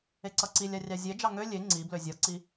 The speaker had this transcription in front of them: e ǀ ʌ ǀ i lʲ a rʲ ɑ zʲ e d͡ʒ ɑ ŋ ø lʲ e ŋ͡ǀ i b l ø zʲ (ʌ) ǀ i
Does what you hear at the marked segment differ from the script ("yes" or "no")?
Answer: no